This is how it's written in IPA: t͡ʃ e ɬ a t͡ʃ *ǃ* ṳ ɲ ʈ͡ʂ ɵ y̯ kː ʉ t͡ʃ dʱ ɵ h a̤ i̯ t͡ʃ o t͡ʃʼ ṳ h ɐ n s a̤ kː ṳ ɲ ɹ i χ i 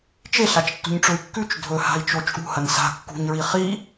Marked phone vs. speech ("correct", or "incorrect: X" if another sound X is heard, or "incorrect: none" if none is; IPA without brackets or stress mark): incorrect: tː